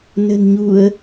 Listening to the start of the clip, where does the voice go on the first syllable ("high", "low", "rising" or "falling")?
low